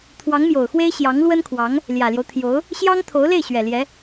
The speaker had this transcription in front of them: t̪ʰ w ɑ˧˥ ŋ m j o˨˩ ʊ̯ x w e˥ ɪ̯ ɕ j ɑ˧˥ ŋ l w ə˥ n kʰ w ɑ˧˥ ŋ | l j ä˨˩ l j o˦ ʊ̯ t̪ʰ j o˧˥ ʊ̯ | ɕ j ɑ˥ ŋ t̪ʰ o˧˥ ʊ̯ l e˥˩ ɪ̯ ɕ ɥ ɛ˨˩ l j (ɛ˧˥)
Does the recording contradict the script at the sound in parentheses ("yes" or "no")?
no